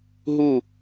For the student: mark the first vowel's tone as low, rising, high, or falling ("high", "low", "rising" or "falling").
falling